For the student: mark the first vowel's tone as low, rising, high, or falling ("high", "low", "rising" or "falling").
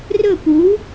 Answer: falling